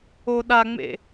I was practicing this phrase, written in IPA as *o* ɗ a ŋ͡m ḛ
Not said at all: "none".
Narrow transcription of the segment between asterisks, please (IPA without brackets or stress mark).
o